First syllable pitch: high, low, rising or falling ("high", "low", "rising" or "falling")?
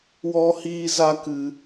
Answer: high